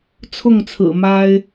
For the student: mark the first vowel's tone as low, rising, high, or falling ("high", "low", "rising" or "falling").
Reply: falling